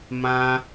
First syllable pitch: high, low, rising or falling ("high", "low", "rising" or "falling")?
high